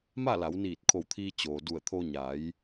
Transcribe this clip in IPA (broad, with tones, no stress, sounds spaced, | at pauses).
m a˥˨ l a˩˧ w n iː˧˩ t̚ kʰ o˧˩ w t̪ʰ iː˧ t͡ɕ oː˩ d u˧˩ ə̯ t̪ʰ o˧ ɲ a˩˧ j